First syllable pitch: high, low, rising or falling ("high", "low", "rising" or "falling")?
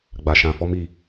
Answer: low